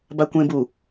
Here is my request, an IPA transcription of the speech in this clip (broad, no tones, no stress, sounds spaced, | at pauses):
b a kʷ ẽ b u